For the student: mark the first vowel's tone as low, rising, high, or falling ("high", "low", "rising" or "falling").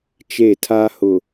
falling